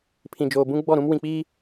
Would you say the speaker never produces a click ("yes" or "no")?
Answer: yes